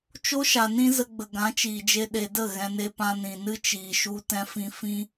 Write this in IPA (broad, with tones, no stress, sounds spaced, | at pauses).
t͡ʃ o˦ ʃ a˨ n ĩ˦ z ə˧ ɡ͡b ə˨ ɡ ã˨˦ t͡ʃ iː˨ d͡ʒ e˧ ɗ e˨ d ə˦˨ ɣ ɛ̃˧ n e˧ p ã˧ n ĩ˨ n ɨ˦ t͡ʃ iː˧ ʃ u˦ t ɛ̃˦ f ĩ˦ f ĩ˦